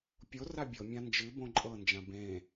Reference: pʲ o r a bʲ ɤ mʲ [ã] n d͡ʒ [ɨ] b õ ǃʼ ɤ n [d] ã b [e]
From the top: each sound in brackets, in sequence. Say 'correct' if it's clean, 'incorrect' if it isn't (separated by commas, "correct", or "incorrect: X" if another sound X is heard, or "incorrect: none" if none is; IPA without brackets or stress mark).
correct, correct, incorrect: d͡ʒ, incorrect: ẽ